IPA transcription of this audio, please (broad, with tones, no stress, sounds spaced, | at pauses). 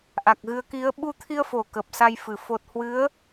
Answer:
ʔ a˨˩ k̚ ɣ ɨ˨˦ ə̯ k i˨˦ ə̯ ɓ u˧ t̪ʰ i˧ ə̯ f o˧˩ k ə˨˩ p̚ s a˧ j f ɨ˧˩ f o˨˩ t̚ h w ɨ˨˦ ə̯